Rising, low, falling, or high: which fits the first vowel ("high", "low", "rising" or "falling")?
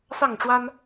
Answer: falling